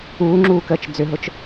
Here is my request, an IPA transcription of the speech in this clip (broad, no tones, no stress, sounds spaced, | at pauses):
uː ŋ͡ǁ uː k əː t͡ʃ d͡z ʏ ɦ ʊ t͡ʃ